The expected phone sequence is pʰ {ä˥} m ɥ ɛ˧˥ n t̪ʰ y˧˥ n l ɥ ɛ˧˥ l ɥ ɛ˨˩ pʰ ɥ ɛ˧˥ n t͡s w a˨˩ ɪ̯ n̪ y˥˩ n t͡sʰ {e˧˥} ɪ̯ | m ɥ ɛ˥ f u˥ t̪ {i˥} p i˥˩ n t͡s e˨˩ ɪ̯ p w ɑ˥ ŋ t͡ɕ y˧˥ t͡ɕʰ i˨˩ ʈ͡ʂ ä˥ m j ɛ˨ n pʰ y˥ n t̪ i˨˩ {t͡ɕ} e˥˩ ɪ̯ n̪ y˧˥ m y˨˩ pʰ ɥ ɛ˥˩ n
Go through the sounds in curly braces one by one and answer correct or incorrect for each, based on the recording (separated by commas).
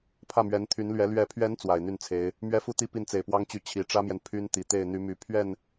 incorrect, correct, correct, incorrect